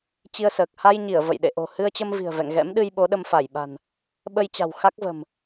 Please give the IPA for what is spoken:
t͡ɕi˧ə̯səː˨˩k̚ ha˧jɲi˧˩ə̯ və̰˧˨jɗḛ˧˨ ʔo̤˨˩hɨ˧ə̯t͡ɕə˧mvi̤˨˩ə̯ vɛ̰˧˨ŋɣɛ̰˧˥mɗɨ˧j ɓo˨˦ɗə˧mfa˧˩jɓa̤˨˩n | ɓə˧jt͡ɕa̤˨˩w xa˦˥k̚və̤˨˩m

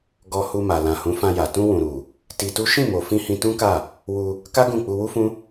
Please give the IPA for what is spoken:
ɡɔ˧hu˧ma˨ lã˨hũ˨˦fã˧ja˨ tũ˧wũ˨ɾu˨ | ti˧tu˦ ʃĩ˦˨mo˨ fĩ˧hĩ˧tũ˦ka˦˨ | wu˧ | ka˦ ɡũ˦˨ k͡pu˧wu˦fũ˦

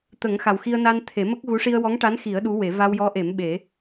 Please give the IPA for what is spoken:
t̪ə˨˩˦ŋxa˨˩wxi˧ə̯ na˧n t̪ʰe˨˩˦mə˦˥k̚ɣu˧˥ ʂi˧ə̯wɔ˧˥ŋʈa˧˥nxi˨˩˦ə̯ ɗu˧˥we˨˩˦ va˧wjɔ˧˥ʔe˨˩˦m ɓe˨˩˦

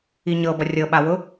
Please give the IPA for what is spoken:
iɲɤbʌ rʲɤɓawʊ

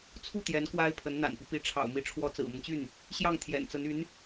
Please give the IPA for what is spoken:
t͡sʰu˥˩t̪jɛ˧˥n kwa˥ɪ̯pʰə˧˥n n̪a̰˨˩npi˦ pi˧˥ ʈ͡ʂʰɑ̰˨˩ʊ̯mi˧˥ʈ͡ʂʰwɔ˧˥ t͡sɹ̩˨˩mə˦nt͡ɕy˥˩n | ɕjɑ˥˩ŋt̪ʰjɛ̰˨˩nt͡sə˧˥n y˧˥n

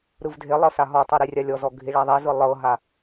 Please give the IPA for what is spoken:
ɾɯvdʱelˠɤ saɦɔtˤɤ ɾirʲalʲɔzɔ ɡʱiɭaðˤɛzɯ lˠɤɦa

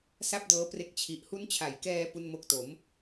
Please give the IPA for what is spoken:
sa˥˩p̚dɤː˦˥pre˦˥k̚ t͡ɕʰi˨˩ʔhu˦˥nt͡ɕʰa˨˩jkɛː˧ pu˥˩nmo˥˩k̚ to˩˦m

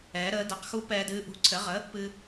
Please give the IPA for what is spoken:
ɛː˨˦ɾəː˨˦dɛ˨˦qxu˦ pɛː˦dɨː˦ ʔṳ˨˦ǀʰɘ˨˦ʁə˨˦ | pɨ˦

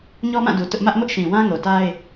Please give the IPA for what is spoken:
ɲɔ˦mã˦˨du˨ tʊ˦ʔ mä˦ʔmʊ˦ʔʃĩ˨wã˦ ŋo˨ta˦ɪ̯

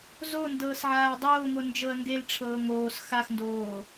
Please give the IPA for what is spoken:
zo ndɤːsʕaːdˤoːŋo nd͡ʒɤɐ̯ŋɡelʈ͡ʂʰɤː ŋoːs xaxndoː

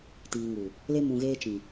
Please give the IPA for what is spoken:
tiː˨ŋu˨ | le˧ mũ˨ɣeː˧t͡ʃĩ˨

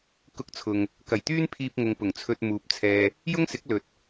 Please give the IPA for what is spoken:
kʊ˧k̚t͡sʰʊ˨ŋ | kɐ˨˩jt̪yː˥npʰiː˧p̚ŋʊ˨ŋ pʊ˨˩ŋt͡sʰɵ˧t̚ muː˨˥p̚ t͡sʰɛː˧ | jʊ˥ŋsɪ˨˥k̚ lɵ˨˥t̚

